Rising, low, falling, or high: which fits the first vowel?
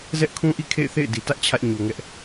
high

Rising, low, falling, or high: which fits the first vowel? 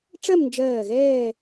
falling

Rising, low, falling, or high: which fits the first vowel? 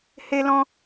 high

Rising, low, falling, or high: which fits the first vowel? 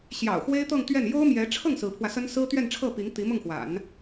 low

